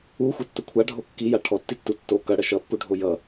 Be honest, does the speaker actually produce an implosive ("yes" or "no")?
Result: no